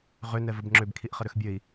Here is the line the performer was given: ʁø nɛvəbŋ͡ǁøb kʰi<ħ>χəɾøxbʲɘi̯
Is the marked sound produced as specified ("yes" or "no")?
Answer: no